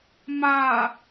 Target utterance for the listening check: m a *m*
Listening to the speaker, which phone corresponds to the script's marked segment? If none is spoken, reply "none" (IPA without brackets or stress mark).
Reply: none